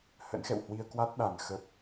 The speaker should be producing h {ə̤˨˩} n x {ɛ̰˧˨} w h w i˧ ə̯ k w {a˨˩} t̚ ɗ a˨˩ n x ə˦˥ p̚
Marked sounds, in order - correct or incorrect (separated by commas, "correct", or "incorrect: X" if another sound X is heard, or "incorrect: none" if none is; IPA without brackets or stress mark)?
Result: incorrect: ə̰˧˥, correct, incorrect: a˦˥